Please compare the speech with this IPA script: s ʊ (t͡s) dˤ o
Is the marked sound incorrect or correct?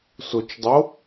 incorrect